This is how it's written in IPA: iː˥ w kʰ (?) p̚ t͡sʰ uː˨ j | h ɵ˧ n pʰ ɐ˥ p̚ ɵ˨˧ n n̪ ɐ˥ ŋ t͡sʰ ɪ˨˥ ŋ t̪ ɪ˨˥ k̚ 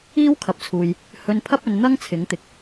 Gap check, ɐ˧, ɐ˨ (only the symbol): ɐ˨